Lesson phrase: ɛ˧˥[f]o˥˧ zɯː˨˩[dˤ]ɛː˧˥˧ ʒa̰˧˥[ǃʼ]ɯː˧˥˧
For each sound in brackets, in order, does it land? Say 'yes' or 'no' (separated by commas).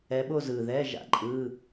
no, no, yes